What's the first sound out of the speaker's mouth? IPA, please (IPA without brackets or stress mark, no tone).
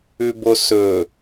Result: ʉ